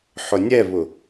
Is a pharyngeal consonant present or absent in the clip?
present